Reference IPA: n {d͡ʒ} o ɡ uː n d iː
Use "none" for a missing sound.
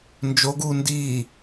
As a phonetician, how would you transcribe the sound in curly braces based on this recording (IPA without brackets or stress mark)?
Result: d͡ʒ